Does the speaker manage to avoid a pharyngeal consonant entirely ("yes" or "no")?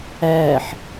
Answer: no